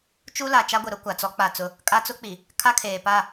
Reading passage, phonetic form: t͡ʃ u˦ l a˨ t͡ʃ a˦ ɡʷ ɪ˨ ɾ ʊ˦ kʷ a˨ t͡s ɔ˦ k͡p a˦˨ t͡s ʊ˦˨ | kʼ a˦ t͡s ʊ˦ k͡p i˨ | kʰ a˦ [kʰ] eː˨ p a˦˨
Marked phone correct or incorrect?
correct